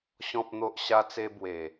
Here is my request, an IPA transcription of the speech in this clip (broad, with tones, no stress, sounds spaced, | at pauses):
ɕ ɔ̃˦ p̚ n̪ o˦ ʔ ɕ a˦ t͡s e˦ b w e˨˩